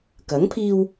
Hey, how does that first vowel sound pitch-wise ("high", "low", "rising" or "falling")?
rising